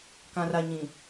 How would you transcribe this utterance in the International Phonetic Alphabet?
k ã˨ r a˨ ɲ ĩ˨

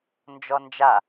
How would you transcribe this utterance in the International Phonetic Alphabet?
n d͡ʒ ɔ n d͡ʒ a

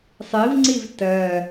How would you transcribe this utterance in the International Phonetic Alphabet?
sˤ i v ŋ͡ǀ i v t ɜ

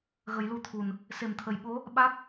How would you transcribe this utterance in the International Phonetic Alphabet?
ɣ ə˨˩˦ j l u˧ t̪ʰ u˨˩ n | s e˨˩˨ m t̪ʰ ə˨˩˨ j ɓ o˧˥ | ɓ a˦˥ k̚

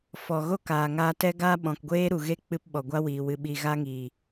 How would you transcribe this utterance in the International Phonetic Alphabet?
f ɔ˨ ɣ o˦˨ k aː˨ ŋ aː˧ t ɛ˦ ɡ aː˦ ɓ ɔ̃˨ k ɡʷ eː˦ ɾ u˨ ɣ e˦ k͡p ɨ˧ p ɓ ɔ˨ ɡʷ a˦ w iː˨ w ɨ˨ ɓ i˨ ɣ a˧ ŋ iː˨

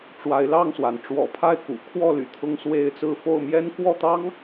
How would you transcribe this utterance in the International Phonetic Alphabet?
ʈ͡ʂ w a˨˦ ɪ̯ l ɑ˥˨ ŋ s w a˩ n ʈ͡ʂ w ɔ̰˨˩ pʰ a˥˨ ɪ̯ k ṵ˨˩ kʰ w ɔ˥˨ l y̰˨˩ t̪ʰ ʊ˦ ŋ s w e˦ ɪ̯ t͡s ɹ̩˥˨ f o˥˨ ʊ̯ m j ɛ˦ n k w ɔ˥˨ t̪ ɑ˦ ŋ

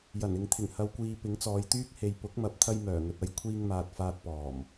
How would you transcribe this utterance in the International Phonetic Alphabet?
j ɐ˨˩ n ɪ˨ ŋ t̪ʰ ɪ˨˩ ŋ h ɐ˨ w kʷ iː˨ p ɪ˨˥ ŋ t͡s ɔː˨˧ j t̪ yː˥ k̚ h e˨ j p ʊ˨˥ k̚ m ɐ˨˥ p̚ t̪ʰ ɐ˧ j m œː˨˩ ŋ ɵ˨ t̚ ɐ˧ j kʷʰ iː˧ ŋ m aː˨ t̚ f aː˧ t̚ p ɔː˨˩ m

